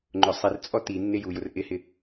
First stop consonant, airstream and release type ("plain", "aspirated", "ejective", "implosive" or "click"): click